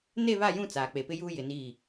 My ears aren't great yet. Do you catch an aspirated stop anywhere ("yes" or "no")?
no